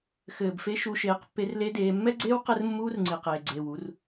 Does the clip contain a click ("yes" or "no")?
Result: yes